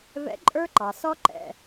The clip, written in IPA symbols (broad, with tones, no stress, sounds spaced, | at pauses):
v ɛ̰˨˥ ǃʼ ə˞˦˥ ǃ ɑ˩ s ɔ˦˥ ǃ ɛ̰˩˧˩